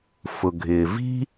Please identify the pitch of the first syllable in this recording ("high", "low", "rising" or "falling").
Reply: low